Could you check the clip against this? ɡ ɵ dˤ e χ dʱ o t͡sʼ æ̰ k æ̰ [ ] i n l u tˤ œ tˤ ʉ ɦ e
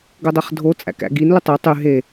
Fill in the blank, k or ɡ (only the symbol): ɡ